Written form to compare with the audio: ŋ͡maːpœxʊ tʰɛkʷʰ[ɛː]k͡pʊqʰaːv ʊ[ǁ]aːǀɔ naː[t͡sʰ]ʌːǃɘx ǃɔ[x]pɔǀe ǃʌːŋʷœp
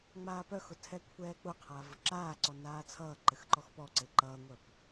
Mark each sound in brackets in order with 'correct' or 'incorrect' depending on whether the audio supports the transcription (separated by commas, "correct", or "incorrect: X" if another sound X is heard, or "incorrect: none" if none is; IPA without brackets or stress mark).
correct, correct, correct, correct